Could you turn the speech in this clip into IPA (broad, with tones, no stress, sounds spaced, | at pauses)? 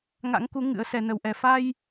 ŋ a̰˧˥ ŋ k u˨˦ ŋ ɨ̰˧˥ ə̯ s ɛ˧ n ə˧ w ʔ ɛ˧ f a˧ j